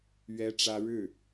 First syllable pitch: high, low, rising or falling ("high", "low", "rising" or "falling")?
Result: high